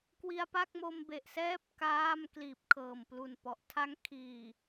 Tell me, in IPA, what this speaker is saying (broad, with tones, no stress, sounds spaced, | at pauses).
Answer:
k w i˧ a̯ p a˥˩ k̚ m o˧ m b e˨˩ ʔ s ɛː˥˩ p̚ k aː˥˩ m k l iː˨˩ p̚ kʰ ɤː˨˩ m p l u˨˩ n p ɔ˨˩ ʔ tʰ a˦˥ ŋ kʰ iː˨˩